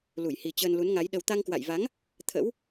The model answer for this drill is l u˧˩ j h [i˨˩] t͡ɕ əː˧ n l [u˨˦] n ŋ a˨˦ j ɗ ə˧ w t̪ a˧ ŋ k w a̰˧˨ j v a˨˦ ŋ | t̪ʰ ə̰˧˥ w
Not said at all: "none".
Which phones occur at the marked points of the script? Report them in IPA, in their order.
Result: i˨˩, u˨˦

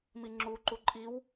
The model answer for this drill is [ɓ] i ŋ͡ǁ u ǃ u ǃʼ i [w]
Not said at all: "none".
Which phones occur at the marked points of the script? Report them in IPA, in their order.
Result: m, w

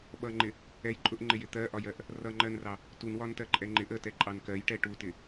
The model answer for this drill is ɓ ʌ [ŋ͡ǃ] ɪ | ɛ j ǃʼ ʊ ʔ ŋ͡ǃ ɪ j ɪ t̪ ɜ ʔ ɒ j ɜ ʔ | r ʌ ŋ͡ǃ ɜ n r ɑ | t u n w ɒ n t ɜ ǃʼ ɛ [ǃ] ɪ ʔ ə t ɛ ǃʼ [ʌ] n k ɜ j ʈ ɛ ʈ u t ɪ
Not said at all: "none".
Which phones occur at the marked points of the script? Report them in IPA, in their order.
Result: ŋ͡ǃ, ŋ͡ǃ, ɑ

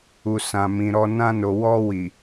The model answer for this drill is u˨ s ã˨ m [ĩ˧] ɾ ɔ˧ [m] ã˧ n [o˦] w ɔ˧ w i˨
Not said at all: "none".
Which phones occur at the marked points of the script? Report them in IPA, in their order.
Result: ĩ˨, n, o˨

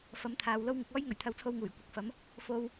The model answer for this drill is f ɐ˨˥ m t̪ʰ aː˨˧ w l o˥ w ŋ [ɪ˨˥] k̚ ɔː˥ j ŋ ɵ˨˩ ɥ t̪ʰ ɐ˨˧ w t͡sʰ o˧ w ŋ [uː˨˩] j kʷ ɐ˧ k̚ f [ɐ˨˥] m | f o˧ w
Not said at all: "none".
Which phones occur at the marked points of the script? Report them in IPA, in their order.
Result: ɪ˧, uː˨˩, ɐ˨˥

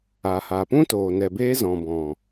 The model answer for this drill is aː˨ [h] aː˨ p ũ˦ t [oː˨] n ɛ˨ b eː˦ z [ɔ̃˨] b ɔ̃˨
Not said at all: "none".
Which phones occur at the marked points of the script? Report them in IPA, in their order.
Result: h, oː˨, ɔ̃˨

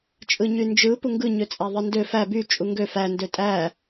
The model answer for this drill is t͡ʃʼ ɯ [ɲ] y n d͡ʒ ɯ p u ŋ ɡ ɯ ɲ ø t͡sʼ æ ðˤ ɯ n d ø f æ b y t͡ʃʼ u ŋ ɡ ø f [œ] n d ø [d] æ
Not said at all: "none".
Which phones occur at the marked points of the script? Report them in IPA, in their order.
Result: ɲ, æ, tʼ

